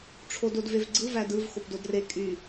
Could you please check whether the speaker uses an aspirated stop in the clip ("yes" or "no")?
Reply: yes